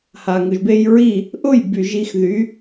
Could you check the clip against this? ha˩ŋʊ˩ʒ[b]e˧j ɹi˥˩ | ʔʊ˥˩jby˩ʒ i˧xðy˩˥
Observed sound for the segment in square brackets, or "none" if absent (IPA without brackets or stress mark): b